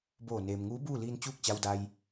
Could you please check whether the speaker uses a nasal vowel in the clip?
no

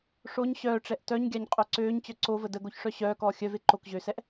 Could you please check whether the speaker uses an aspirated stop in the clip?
no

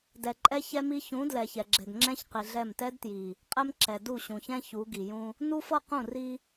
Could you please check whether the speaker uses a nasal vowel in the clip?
yes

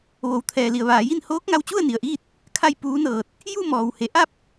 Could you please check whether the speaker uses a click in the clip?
no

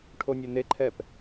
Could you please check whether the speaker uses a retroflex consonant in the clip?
yes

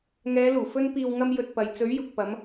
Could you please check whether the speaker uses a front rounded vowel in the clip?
no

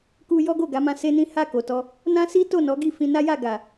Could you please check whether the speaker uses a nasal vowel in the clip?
yes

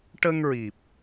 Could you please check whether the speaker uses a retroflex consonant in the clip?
yes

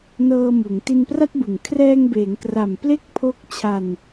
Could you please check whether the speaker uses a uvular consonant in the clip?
no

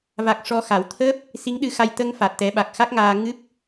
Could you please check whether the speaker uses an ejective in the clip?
no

